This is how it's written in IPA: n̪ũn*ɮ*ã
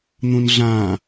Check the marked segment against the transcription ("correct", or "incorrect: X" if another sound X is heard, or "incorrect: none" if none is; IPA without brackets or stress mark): correct